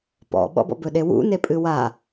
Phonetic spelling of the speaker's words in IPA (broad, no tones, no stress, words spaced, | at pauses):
pɔ̰ɓɔ̰bɔ̰ bɵɗewṵ nepʼɨwa